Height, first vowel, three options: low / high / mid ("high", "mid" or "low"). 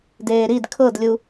mid